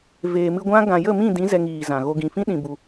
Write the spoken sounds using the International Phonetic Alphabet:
v eː˨ m ɨ˧ ɡʷ ã˦ ɡ ã˨ j ə˦˨ m ĩ˦˨ d ĩ˨˦ z ɛ˧ ŋ iː˨ z ã˨ ɣ o˧ ɡ ĩ˨ f ĩ˦ ɗ ĩ˨ b u˨

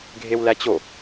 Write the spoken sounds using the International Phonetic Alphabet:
ɡʱ e w l æ t͡ɕ o

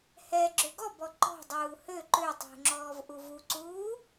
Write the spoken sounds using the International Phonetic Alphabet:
h ɛ ɡ͡ǁ ø ɡ ɔ b ɔ ǃ ɔ̤ dˤ uː h ø ǃ ø tˤ ṳ ŋ͡ǁ ɔː v ʔ u v u ǀ uː

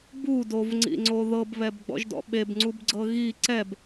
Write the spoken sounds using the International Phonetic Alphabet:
b u d o v ŋ͡ǀ ḭ ŋ͡ǀ o ð ɤ b β ɛ b ɡ͡b ɔ̰ ʒ d ɔ̰ ɓ e b ŋ͡ǀ u b ɡ͡ǀ ɤ ɣ i ǀ ɛ b

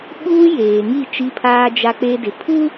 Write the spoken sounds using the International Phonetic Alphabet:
ɓ uː˦ j eː˨ ŋ i˦˨ t͡ʃ i˦ pʰ aː˦ d͡ʒ a˦ k͡p e˦ d ɪ˨ pʰ u˦

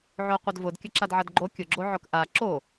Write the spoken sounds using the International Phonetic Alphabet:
ʕ o qʷ ɐ d v ʊ d kʲ ɐ ǁ a d ʕ ɐ d ɡ͡ǃ o kʲ ʊ ɡ͡ǁ o ʕ ʊ k ʔ a ǁ o

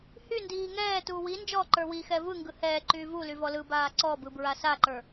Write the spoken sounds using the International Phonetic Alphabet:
h y n d iː ŋ ɛː t uː w i n d͡ʒ ɔː ǃ ə˞ w i x ɛ v ɯ ŋ ɡ ɯ h ɛː ǃ yː v u l y v ɔ l ɯ b aː ǀ ɔ b ɯ b ɹ a s a ǃ ə˞

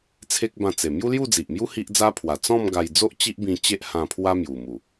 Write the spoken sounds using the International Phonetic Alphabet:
t͡sʰ e˦ k̚ b ã˧ t͡s e˨˩ m j u˦ l j u˥˧ d͡z i˨ ʔ m j u˦ h i˦ ʔ d͡z a˦ pʰ w a˨˩ t͡s ɔ̃˥˧ m ɡ a˧ j d͡z o˦ ʔ t͡ɕ i˦ ʔ b ĩ˧ t͡ɕ e˦ ʔ h ã˧ pʰ w a˦ m j u˨˩ m u˨˩

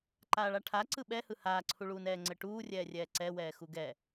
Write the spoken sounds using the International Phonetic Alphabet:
ǃ aː ɭ a ʈʰ a ǀ ɯ ɓ ɛ h ɯ h aː ǀʰ u ɭ uː n ɛː ŋ͡ǀ ɘ ʈ uː rʲ ɛː rʲ ɛː ǀ ɛ w ɛː x u ɡ ɛ

